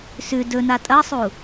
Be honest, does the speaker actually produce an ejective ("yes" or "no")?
yes